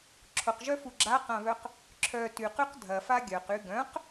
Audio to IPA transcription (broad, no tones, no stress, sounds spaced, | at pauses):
ǁʰ ʊ q ʒ œ f u ɡ͡ǁ a q ã β œ q | ǁʰ œ t y q y q dʱ ɐ f a ɡʲ œ q y ɡ œ̃ q